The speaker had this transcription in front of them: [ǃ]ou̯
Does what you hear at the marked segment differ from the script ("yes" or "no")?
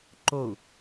no